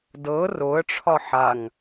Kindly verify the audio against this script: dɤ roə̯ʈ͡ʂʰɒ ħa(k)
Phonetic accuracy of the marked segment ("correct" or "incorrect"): incorrect